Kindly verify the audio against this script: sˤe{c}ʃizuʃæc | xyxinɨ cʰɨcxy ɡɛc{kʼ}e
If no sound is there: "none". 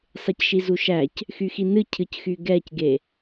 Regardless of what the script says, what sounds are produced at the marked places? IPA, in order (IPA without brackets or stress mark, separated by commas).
c, ɡ